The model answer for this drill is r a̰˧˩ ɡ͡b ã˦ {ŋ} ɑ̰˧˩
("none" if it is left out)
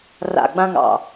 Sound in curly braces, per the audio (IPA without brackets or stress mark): ŋ